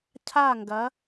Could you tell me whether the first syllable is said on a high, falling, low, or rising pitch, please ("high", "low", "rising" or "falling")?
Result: falling